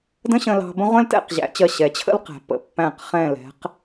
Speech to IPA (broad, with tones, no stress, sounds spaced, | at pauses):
d ə̃˥ ɕ ə̃˧ l ɑ̤˧ b ə̃˥ ʁʷ ɛ̃˥ l t ɛ̰˥˧ q ʑ æ̰˩˧ t͡ɕ ɜ˧˩ ɕ ɛ˩˧ t͡ɕʰ ə̰˥ l q æ̤˩˧ pː ə̰˩˧ pː æ̃˧˩ q χ ɛ̃˧˩ l ɛ̤˩˧ q